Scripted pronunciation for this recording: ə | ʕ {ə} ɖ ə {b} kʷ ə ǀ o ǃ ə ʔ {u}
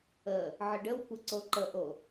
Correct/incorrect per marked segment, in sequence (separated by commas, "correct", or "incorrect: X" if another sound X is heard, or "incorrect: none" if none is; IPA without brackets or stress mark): correct, incorrect: w, incorrect: o